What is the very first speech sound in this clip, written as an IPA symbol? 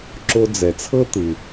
ǁ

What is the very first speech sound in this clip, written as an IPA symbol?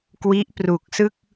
k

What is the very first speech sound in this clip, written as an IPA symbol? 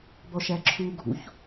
b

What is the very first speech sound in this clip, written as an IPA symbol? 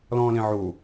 l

